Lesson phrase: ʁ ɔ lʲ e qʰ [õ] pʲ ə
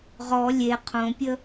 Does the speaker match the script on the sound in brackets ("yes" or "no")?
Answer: yes